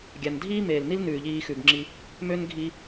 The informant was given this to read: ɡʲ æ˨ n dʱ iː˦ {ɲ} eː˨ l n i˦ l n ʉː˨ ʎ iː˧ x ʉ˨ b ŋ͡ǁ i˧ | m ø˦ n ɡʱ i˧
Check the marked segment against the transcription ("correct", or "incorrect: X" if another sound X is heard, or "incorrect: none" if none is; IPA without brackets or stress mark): incorrect: m